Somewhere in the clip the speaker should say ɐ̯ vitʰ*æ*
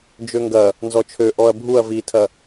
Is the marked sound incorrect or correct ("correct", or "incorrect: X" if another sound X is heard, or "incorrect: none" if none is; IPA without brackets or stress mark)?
incorrect: ɐ